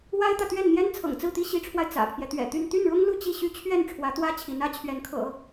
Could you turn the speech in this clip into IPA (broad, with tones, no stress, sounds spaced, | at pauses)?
w a˥ ɪ̯ t̪ ä˨ t̪ ɥ ɛ˥˩ n n̪ j ɛ˥ n t͡sʰ ɤ̰˨˩ ŋ t͡s ɹ̩˥˩ t̪ i˥ ɕ i˧˥ ʈ͡ʂʰ w a˧ ɪ̯ t͡s ä̰˨˩ pʰ j ɛ˦ t̪ ɥ ɛ̰˨˩ t̪ y˥˧ n t̪ y˥˩ n ɻ ʊ˥ ŋ l u˥˧ t͡ɕ i˥˩ ɕ y˥ t͡ɕʰ ɥ ɛ˥˩ n ʈ͡ʂʰ w ä˧˥ t̪ w ä˥ t͡ɕʰ i˧˥ n ä˧˥ t͡ɕʰ ɥ ɛ˧˥ n kʰ ɤ̰˨˩˦